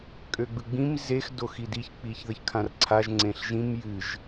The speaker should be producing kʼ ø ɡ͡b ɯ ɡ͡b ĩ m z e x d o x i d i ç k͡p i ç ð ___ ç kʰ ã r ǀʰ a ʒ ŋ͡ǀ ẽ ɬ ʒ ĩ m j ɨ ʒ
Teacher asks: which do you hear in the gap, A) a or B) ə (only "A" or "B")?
B